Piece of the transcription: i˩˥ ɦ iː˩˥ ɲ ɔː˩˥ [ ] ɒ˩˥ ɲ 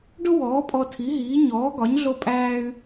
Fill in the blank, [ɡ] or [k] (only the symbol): ɡ